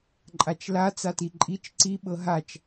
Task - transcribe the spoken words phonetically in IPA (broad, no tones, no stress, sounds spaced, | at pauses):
ǃʼ a t͡ʃ l a t͡s a t i ǃʼ i t͡ʃ ǀ i ɓ ɤ ɦ a t͡ʃ